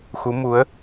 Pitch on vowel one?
rising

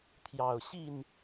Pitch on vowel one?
low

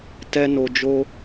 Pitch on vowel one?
high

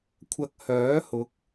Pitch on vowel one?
high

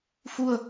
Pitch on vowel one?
falling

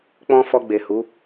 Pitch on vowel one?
high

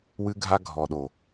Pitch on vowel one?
high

